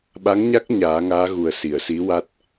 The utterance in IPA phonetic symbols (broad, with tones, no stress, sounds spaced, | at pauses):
ɓ a˧˥ ŋ ɲ a˦˥ k̚ ɲ aː˨˩˦ ŋ aː˧˥ ɣ u˨˩ ə̯ s i˨˩˨ ə̯ s i˧˥ w a˦˥ t̚